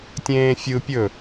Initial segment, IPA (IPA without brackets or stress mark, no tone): tʲ